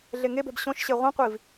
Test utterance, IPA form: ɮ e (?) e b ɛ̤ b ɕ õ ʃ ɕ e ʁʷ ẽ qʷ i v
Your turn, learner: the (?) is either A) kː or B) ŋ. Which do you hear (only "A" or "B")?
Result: B